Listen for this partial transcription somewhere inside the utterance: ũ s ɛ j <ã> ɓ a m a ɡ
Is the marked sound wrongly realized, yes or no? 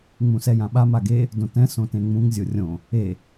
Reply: no